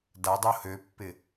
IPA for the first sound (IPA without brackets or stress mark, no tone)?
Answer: d